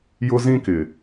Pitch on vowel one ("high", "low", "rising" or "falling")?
high